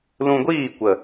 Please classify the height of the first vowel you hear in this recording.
high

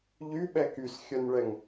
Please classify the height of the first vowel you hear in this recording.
high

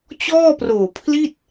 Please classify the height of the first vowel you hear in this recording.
mid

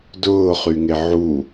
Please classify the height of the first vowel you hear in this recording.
high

